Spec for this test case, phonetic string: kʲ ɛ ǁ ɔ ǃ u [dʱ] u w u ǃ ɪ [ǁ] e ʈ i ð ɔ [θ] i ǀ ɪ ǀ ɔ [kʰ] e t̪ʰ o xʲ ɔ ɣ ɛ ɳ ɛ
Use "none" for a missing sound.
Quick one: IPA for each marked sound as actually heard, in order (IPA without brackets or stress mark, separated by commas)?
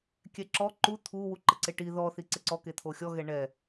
t̪ʰ, ǀ, θ, k